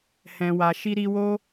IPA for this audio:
hɛ̃˨wa˨ ʃi˧ɾi˧wo˦

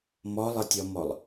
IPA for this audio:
mɔlˠətʲɔmɔlˠ

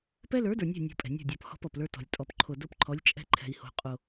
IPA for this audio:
pɛ˦lə˞˨˦də˞˨nʲɛ̤˦˨ nʲo̤˦pʼɛ̤˨ nʲo̤˦˨dʲɔ˨p hɔ̤˦pɔ˨plə˞˦tɔ̤˨lʲ tʼɔ˨pǃʰo˨ do˦pǃʰɔ˨˦lʲ t͡ʃʼɛ̤˦ǃʰɛ̤˨i̯ho̤˨ qʼo˨

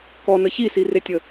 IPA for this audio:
kɔnə çisiretʲə

